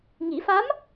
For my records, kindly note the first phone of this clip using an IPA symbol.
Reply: ŋ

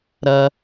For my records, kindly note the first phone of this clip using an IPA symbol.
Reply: ɾ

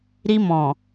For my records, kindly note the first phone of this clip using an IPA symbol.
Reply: ɾ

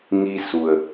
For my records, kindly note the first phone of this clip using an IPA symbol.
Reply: ŋ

